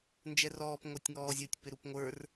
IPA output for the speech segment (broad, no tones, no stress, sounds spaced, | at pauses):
n d͡ʒ ɛ r ɔː p ŋʷ ɑ tʲ ŋ ɔː zʲ ɔ tʲ p ɪ ɾ u p ŋʷ ə˞ r